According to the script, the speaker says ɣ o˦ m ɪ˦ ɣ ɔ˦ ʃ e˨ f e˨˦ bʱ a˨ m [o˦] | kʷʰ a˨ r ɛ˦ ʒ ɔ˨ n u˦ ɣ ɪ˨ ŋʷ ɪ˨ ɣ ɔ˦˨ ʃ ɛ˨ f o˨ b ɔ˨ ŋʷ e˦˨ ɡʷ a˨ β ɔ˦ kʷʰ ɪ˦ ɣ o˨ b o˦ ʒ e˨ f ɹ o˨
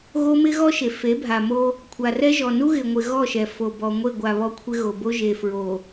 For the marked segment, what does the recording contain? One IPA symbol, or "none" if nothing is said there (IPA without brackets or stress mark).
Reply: o˦